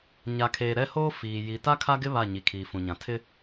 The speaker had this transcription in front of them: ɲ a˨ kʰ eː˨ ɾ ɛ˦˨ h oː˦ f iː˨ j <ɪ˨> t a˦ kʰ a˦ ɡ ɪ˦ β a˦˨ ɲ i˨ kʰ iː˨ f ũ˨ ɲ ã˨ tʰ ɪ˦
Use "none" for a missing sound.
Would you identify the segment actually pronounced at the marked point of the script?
i˨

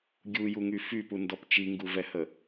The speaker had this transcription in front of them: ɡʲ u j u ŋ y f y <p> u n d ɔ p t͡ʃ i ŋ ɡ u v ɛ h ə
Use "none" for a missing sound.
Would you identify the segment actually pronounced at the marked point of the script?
p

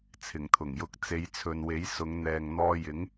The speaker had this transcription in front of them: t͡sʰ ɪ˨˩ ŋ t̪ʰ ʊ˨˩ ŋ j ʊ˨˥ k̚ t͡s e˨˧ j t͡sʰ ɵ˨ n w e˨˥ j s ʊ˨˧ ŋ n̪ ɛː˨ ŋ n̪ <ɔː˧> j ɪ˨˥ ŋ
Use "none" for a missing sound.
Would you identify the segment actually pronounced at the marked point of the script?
ɔː˧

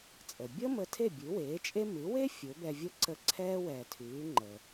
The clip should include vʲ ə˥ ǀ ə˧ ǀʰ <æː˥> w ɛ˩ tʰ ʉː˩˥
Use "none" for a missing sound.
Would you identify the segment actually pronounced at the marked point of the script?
ɛː˥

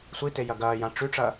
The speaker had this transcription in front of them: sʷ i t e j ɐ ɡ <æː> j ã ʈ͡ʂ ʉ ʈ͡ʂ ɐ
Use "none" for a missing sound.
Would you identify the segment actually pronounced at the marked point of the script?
ɐː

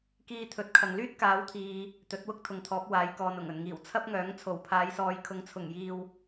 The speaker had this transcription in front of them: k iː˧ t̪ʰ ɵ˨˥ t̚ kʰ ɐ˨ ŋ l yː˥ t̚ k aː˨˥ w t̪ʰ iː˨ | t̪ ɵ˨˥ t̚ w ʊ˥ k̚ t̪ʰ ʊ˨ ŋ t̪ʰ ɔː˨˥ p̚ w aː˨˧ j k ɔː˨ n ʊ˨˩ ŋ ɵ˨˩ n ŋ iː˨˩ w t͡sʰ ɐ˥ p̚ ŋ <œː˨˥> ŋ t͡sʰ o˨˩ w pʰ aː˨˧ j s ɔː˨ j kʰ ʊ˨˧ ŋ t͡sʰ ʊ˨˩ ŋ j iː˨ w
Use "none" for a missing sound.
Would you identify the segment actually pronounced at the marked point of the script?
œː˨˥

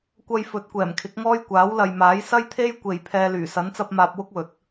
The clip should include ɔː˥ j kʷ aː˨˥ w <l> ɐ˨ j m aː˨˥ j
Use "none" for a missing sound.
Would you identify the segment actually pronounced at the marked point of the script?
l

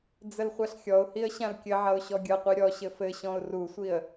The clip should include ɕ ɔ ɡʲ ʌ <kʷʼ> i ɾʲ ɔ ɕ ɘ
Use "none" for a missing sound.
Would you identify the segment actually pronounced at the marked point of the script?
qʷ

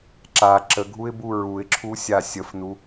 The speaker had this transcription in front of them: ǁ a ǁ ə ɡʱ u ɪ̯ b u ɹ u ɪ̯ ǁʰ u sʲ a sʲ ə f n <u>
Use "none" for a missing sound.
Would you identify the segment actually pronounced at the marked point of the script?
u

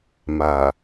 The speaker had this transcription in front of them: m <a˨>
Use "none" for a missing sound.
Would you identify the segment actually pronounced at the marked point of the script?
a˨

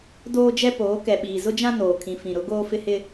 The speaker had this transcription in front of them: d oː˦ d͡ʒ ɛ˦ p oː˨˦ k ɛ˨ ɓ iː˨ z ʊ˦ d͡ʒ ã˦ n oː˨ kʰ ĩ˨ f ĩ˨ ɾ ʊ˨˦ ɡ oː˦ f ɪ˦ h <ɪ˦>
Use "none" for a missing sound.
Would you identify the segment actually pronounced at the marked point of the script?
ɪ˦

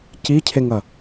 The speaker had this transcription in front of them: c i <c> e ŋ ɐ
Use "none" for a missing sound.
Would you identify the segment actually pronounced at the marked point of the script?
cʰ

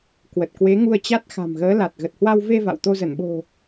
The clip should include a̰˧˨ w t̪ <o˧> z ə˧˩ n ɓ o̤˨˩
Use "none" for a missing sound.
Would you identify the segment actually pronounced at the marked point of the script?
o˧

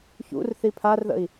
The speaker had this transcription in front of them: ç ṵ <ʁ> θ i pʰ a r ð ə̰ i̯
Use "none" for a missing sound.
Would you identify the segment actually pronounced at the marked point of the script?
r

